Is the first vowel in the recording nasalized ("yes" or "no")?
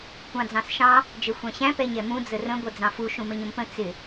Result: yes